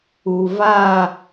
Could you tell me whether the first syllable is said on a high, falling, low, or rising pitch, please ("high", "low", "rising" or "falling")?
low